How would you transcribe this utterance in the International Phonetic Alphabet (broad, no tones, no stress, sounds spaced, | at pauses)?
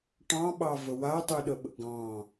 ʈ ɑ̃ ɓ ɑ v ə w a tˤ y ɗ ə ɓ ə̰ ɡ ɑ̃